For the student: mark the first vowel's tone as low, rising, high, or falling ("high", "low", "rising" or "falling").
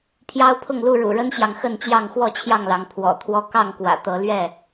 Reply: high